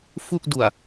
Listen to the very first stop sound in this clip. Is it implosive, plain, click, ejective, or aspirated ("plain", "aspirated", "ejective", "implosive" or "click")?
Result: plain